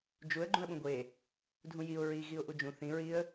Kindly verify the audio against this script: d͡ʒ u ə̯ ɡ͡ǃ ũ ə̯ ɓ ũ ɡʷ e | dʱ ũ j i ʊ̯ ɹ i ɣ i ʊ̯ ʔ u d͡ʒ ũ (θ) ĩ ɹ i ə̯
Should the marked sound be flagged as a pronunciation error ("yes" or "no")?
no